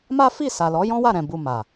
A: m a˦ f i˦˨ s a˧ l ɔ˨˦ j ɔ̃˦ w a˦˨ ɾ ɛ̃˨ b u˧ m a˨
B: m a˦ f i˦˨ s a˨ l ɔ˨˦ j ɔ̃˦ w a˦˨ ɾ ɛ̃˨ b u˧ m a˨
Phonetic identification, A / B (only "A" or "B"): B